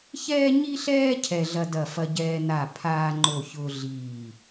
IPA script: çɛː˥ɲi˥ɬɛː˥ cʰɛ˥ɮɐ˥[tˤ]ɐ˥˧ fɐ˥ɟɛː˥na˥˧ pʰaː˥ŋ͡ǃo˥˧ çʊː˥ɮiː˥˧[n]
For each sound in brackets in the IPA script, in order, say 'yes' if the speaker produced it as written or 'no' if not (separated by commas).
no, no